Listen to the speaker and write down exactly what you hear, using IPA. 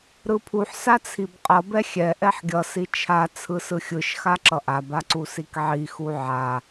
ɾ ɯ pʰ u ħ s a t͡sʰ i b qʼ ʌ b ɛ xʲ ɛ ʔ ɛ ħ ɡʲ ʌ s i t͡ʃʰ a t͡sʰ ɯ s ɯ xʲ ɯ ʃ x a ǁ ʌ ʔ a b a ǀ u s i k ʕ i x u ʕ a

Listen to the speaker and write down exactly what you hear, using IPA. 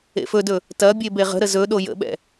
ḛ f ɵ d ɵ | t ɐ bʲ e b e ʁ ə̤ ɾ ə z ɵ ɗ o j ə̰ ɓ ɛ̰

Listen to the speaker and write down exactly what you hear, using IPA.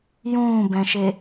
j ũː b ɛ̃ ʃ e

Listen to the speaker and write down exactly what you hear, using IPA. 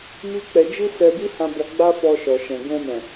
m i˦ k͡p ɛ˧ d͡ʒ i˦ s ɛ˧ b i˦ h ã˧ b ɔ˧ ɡ͡b a˦ f ɔ˧ ʃ ɔ˨ ʃ ɛ̃˨ ɡ ɛ̃˧ m ɛ̃˨

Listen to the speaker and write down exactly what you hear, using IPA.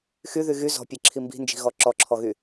x y ð y ɣ y z ɔ̤ pʲ e ǁʰ i m b i̤ n d͡ʒ i̤ ɣ ɔ ǁ ɔ ǁʰ ɔ ɣ y

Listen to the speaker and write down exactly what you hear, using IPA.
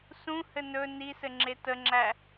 s ũ h ɘ n ɵ n i s ɘ ŋ͡ǁ e t ə ŋ͡ǁ æ

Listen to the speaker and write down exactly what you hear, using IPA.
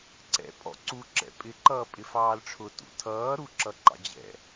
ǀ ɛ̰ pʼ ɔ̰ ǀ u ǁ ɛ̰ pʼ ɪ ǃ ʌː pʼ ɪ f ɑː l ʈ͡ʂʰ ʊ t ṵ tʰ ʌː ɾ u ǁ ʌ ǃ ɑ̰ d͡ʑ ɛ̰

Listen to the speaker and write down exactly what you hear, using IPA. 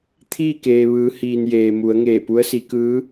t̪ʰ iː˥˨ k eː˩ ʋ ɯː˩˧ h iː˩ n j eː˩ m u˩˧ ə̯ ŋ eː˧˩ p u˧˥ ə̯ s i˩˧ k ɯː˧˥

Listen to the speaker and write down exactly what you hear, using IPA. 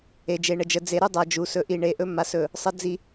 e˨ d͡ʒ e˨ ɳ ə˨ d͡ʒ ə˨ d͡z e˨ ɾ u˦ dˤ a˨ d͡ʒ u˨ s ɵ˨ ʔ i˨ ɳ e˨ ʔ ɵ˦ m a˨ s ɵ˨ | sˤ ə˦ d͡z i˨

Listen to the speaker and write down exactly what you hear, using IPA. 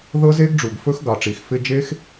ð ɤ˦ z e˦ ɡ ɖ͡ʐ u˨ ɡ f ɵ˦ x ɡ ɑ˨ ʈ͡ʂ i˨ x f ɪ˧ d͡ʒ e˦ x

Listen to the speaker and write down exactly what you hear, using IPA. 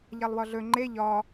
ʎ a lˠ w ɒ ɮ ɵ ŋ͡ǃ e ʎ ɒ

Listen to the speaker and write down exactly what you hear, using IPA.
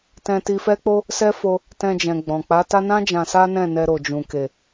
t ɛ̃˧ t i˧ f ɛ˦ k͡p o˦ | s ɛ˦ f o˧ | t ɛ̃˧ d͡ʒ ɛ̃˨ ɡ͡b ɔ̃˨ k͡p a˨˦ t a˦ n ã˦ d͡ʒ ã˧ s a˦ n ɛ̃˦˨ n ɛ˧ ɾ o˨ d͡ʒ ũ˨ k e˨

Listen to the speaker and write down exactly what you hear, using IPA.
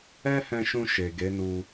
ɛ˦ h ɛ̃˧ ʃ ũ˧ ʃ e˨ ɡ e˨˦ n u˧

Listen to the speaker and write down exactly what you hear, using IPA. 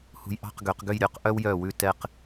h ṳ˧ j ʔ ɑ̤˥˧ q ɡ ø˩˧ q ɡ ø˥˧ j ɾʲ œ˥˧ q ʔ œ˥ w j œ˧˩ w ʉ˥˧ t ɛ˧ q

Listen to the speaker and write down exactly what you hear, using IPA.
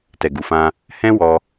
t ɛ˨ ɡ u˨ f ã˧ | h ɛ̃˦ w ɔ˧

